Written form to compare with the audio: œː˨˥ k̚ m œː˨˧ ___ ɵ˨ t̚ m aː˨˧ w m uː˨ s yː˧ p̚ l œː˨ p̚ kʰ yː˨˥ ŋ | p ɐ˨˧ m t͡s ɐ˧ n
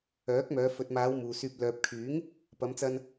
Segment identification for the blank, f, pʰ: f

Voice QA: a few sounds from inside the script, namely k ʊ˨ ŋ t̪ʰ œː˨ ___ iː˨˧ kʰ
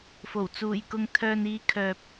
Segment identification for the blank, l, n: n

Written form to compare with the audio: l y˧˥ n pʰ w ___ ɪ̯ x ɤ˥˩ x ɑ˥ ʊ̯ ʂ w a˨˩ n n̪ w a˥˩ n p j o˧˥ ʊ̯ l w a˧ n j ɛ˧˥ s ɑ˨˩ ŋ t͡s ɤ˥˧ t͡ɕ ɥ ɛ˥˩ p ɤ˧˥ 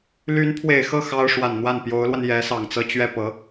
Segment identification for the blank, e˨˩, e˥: e˨˩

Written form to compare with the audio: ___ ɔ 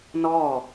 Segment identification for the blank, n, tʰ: n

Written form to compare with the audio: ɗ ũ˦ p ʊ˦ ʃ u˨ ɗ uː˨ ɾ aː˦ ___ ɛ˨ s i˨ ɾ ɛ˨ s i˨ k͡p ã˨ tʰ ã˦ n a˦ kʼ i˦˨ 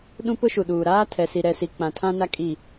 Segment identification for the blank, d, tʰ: tʰ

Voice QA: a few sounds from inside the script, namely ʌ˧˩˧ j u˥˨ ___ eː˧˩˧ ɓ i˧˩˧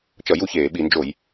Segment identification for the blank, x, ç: ç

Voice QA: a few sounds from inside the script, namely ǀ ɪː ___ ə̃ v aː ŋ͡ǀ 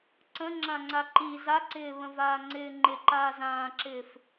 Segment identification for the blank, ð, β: β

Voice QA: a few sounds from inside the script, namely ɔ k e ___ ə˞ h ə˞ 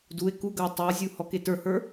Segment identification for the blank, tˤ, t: t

